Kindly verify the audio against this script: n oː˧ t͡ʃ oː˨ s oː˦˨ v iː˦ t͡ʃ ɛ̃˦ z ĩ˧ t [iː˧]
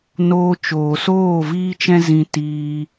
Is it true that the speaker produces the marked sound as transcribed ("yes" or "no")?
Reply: yes